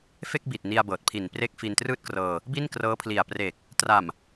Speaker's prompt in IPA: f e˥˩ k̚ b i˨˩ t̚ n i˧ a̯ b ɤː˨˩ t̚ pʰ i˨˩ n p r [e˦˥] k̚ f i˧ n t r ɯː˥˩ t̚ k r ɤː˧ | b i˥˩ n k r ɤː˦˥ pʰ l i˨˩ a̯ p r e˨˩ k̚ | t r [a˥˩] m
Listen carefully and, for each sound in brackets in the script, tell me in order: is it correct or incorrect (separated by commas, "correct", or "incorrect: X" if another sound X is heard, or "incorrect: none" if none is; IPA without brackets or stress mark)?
correct, incorrect: a˨˩